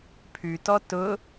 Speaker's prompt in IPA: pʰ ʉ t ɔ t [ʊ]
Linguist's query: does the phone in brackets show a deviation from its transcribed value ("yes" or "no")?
no